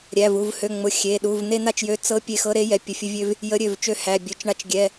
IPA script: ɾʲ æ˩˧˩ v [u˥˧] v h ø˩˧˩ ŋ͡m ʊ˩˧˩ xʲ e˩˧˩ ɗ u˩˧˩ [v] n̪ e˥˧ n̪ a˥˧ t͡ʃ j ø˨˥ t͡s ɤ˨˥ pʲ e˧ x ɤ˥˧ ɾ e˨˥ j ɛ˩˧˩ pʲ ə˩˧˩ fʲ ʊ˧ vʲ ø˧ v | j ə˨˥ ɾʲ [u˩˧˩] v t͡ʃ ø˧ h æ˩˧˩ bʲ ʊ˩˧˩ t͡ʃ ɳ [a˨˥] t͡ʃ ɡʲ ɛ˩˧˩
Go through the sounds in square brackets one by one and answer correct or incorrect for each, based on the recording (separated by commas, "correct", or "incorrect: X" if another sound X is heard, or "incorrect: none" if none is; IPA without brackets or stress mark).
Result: incorrect: u˩˧˩, correct, incorrect: ø˩˧˩, incorrect: a˧